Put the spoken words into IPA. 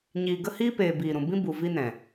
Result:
ɲ iː˨ ɡ ə˦ h iː˦ p eː˨ b iː˨ ɾ ũ˨ b ĩ˦ b u˨ v i˦ n ɛ̃˨

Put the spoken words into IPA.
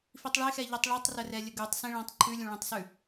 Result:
f i tˤ ɭ e x ɛ ʎ ɛ tˤ ɭ i tˤ r ə r ɛ lʲ ə ɡ ʉ tˤ s ĩ ɭ ã tˤ ǃʰ ʉ lʲ ũ ɭ ẽ tˤ s ʉ

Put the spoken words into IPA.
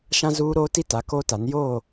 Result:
ʃ ã˦ z uː˦ ɾ oː˦ t i˦ t a˨˦ k oː˦ t a˨˦ n j oː˦˨

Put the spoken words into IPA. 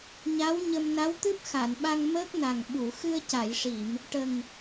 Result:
ɲ a˧˥ w ɲ ə˧ m n a˧˥ w t̪ ɨ˦˥ p̚ x a˨˩˨ n ɓ a˧ ŋ m əː˦˥ k̚ n a˨˩ ŋ ɓ u˨˩˨ x ɨ˧ ə̯ c a˨˩˨ j ʂ i˨˩˨ m | ʈ ə˨˩ ŋ

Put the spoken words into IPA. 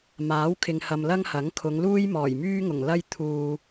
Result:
m aː˨˥ w kʰ ɪ˨ ŋ h ɐ˨ m l ɐ˥ ŋ h ɐ˨˥ ŋ kʰ ʊ˨˧ ŋ l uː˥ j m ɔː˨˩ j m yː˥ ŋ ʊ˨˩ ŋ l ɐ˥ j t̪ʰ uː˨

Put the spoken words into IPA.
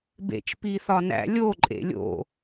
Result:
b ḛ t͡ʃ p i θ ɒ n æ̰ lʲ o ǃʼ ḛ lʲ o̰

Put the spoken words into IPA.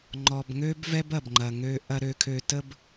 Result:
ŋ͡ǃ ɔ˨ b ŋ ø˦ b v ɛ˦ b ɐ˨ b ŋ͡ǃ ɐ˨ ŋ ø˧ ʔ ɐ˧ ɾ ø˧ kʰ ø˧ t ə˦ b

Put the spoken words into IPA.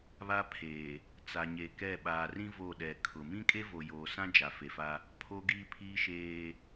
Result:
β a˦ pʰ eː˨ | t͡s a˨ ɲ e˨ k ɛ˦˨ ɓ aː˨ r ĩ˦ v o˦˨ ɗ ɛ˨ kʰ ʊ˨ m ĩ˦ kʼ e˦ v o˨ j oː˨ s ã˦ d͡ʒ a˨ f e˨ f a˦ | pʰ o˦ ɡ iː˦ pʰ iː˦ ʃ eː˦

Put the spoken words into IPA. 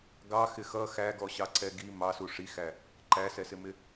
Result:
ɡ ɑ x ɪ x ʌ x æ ɡ ɔ ɕ ɑ ǀ ɛ ɡ i m ɑ s u ʂ i x æ | ǃ æ s ɛ s ɪ m ɪ

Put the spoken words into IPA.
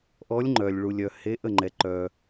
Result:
ʔ ɔ˨˥ lʲ ŋ͡ǃ œ˩ lʲ ɭ u˩ lʲ œ˩ h e˨˥ ʔ ə˩ ŋ͡ǃ ɛ˩ ǃ œ˩

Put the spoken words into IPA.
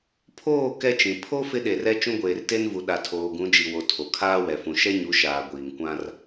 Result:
pʰ oː˦˨ k ɛ˦ t͡ʃ ĩ˨ pʰ o˦ f ɪ˦ ɗ e˨ r ɛ˦ t͡ʃ ũ˦ ɡʷ eː˨ r t e˦ n v u˨ ɗ a˨ tʰ oː˨ ɡ ũ˨˦ d͡ʒ i˨ w o˨ tʰ o˨ kʰ aː˦ w ɛ˨ f ũ˨ ʃ ɛ˦ ɲ u˨˦ ʃ aː˨ ɡʷ iː˨ ŋ kʷ ã˦ r

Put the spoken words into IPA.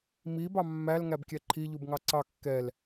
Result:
m i b ɑ mː æ l ŋ æ b kʲ ɛ ǃʰ i ʎ u b ŋ ɑ ǀ ɑ kː ɛ l

